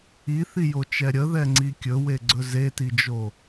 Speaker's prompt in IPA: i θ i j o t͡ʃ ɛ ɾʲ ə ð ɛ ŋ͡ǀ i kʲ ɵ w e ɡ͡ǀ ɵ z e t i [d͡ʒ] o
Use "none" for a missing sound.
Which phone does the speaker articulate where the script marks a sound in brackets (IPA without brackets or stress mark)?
d͡ʒ